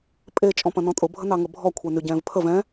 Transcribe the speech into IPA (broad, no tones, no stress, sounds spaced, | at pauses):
pʼ e t͡ʃʼ ɔ̃ p ɐ̃ n ɔ̃ tʼ ʊ bʱ ə n ɑ ŋ ə bʱ ɔ kʷʰ e n y ɟ ɛ̃ː v pʰ ə v ɛ̃